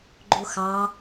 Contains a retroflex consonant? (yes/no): no